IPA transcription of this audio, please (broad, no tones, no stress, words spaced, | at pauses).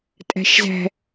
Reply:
tʼæ̤ʃzæ̤